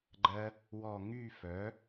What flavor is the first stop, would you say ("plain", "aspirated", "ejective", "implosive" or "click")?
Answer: click